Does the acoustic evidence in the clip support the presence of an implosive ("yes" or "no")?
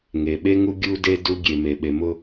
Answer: yes